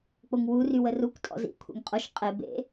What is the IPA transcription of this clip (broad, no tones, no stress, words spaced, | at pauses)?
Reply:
k͡poŋwu rywərukʷ tʼɔ̰zḭ kʷʰḛŋqʼoʃ qʼe bḛ